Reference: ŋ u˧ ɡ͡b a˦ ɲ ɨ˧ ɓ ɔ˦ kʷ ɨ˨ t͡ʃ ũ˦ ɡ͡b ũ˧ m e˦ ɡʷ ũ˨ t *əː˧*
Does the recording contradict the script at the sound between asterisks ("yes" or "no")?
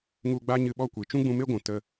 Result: yes